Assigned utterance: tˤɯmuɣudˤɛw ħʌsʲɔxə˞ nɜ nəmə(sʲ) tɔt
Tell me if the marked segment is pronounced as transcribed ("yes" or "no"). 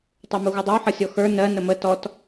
no